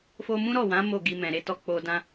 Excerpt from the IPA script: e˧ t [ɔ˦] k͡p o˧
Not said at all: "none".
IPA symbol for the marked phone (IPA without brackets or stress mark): ɔ˦